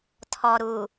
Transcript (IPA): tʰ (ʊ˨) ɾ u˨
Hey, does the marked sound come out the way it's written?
no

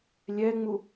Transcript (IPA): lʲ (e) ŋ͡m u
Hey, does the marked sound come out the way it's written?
no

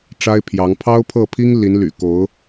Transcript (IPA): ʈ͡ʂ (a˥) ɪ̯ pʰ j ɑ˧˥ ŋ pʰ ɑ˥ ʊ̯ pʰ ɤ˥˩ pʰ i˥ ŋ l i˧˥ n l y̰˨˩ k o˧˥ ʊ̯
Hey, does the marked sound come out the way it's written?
yes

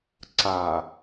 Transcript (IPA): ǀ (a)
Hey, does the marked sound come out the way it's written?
yes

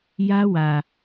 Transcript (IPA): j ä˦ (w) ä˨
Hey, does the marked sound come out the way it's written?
yes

